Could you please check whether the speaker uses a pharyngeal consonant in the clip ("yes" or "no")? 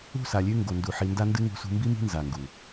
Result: yes